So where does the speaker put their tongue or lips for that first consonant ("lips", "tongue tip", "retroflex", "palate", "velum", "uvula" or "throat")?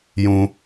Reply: palate